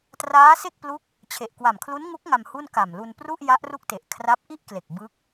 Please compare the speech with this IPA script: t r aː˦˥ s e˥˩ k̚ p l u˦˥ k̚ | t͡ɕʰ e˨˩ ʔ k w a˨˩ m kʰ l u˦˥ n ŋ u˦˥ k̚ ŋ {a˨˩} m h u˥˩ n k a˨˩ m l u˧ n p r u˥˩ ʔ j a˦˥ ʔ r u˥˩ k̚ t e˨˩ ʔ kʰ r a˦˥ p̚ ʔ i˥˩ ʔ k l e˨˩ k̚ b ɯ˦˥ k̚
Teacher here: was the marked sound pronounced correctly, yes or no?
no